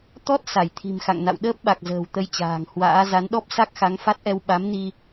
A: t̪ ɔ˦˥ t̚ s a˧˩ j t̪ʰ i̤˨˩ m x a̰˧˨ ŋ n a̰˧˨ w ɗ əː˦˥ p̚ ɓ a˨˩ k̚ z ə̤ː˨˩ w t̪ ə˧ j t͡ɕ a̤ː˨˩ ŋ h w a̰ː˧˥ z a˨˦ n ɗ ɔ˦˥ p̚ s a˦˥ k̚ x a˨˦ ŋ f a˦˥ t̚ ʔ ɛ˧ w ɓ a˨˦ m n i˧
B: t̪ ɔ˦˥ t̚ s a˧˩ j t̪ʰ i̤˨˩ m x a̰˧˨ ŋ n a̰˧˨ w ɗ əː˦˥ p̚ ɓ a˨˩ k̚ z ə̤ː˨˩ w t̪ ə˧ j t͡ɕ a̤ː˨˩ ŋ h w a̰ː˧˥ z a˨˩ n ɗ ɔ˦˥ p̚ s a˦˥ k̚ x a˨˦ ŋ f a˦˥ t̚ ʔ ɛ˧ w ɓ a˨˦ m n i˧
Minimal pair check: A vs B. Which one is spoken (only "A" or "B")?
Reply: A